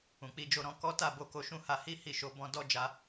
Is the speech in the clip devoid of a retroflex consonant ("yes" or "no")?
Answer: yes